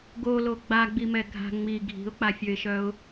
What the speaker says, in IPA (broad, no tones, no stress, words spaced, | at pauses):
ɡolo ɡ͡baɡ͡bimɛ ɡʱa̤ ŋ͡mi ɡʱi̤ʊ̯k͡pafʲøɪ̯ʃœʊ̯